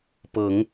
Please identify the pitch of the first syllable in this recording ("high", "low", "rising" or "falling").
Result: rising